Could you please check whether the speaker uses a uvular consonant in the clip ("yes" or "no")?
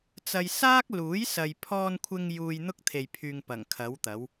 no